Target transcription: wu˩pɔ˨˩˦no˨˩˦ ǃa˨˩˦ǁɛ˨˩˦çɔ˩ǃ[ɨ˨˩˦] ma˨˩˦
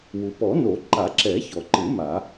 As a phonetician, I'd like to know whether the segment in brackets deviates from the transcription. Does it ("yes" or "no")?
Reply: no